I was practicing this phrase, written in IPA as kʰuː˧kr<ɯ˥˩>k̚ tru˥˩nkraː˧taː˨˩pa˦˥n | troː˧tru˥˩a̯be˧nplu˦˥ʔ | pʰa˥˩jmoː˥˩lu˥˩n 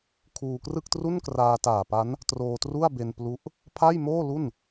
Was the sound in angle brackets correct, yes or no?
yes